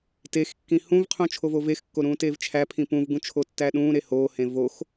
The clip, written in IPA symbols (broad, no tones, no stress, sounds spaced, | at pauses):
t e x kː ĩ h ũ v qʰ ũ t͡ʃʰ o v o v e x kː o ɾ ũː t eː v t͡ʃʰ æ pʰ ĩ p ũ v ɡ ũ t͡ʃʰ o tː æ ɗ ũː ɾ e h oː h ẽ v o x